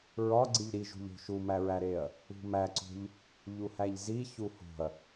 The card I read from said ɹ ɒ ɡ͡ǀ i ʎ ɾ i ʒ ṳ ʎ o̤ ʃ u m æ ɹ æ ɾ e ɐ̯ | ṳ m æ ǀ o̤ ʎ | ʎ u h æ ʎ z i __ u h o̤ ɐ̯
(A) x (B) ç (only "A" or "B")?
B